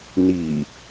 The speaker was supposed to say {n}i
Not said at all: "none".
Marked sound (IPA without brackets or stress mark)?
n